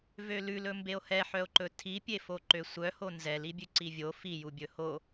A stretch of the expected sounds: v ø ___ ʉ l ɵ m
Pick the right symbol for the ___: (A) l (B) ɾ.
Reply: A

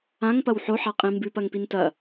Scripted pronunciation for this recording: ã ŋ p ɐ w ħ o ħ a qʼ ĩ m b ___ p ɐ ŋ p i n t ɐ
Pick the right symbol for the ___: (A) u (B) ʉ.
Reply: B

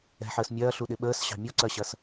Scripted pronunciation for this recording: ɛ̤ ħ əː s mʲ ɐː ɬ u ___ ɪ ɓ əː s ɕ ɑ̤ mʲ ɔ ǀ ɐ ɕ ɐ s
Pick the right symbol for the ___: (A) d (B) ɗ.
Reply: B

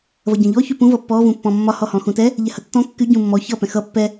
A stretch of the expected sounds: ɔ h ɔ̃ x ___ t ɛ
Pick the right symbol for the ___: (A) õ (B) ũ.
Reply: B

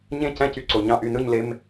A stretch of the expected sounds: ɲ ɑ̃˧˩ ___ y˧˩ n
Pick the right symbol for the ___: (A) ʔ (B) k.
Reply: A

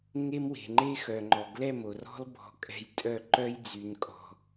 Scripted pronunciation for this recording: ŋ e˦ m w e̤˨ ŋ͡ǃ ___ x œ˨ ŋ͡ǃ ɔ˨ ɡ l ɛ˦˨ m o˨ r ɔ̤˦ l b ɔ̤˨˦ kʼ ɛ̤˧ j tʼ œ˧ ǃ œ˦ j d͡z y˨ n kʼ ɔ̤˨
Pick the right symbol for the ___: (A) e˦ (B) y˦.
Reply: A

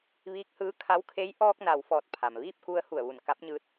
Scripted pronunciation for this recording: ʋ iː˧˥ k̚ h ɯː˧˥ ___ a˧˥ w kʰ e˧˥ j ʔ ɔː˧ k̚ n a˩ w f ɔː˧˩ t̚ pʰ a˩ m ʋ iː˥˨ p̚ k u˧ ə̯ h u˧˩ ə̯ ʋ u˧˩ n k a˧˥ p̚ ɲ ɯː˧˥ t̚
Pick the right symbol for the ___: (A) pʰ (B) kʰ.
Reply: B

